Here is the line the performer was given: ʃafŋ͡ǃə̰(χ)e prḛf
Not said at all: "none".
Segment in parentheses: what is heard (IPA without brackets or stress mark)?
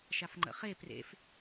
χ